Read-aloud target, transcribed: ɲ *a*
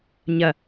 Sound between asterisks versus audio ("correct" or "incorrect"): incorrect